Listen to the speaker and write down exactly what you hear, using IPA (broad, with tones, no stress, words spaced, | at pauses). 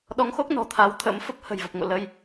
ɗɔ˨˦ŋxo˦˥k̚ nɔ̤˨˩t̪ʰa˨˦wt̪ʰə̰˧˥m fə˦˥p̚ hə̤˨˩jvə˨˩p̚ ŋo̰˧˨lə˧j